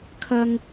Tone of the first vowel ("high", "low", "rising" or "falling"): high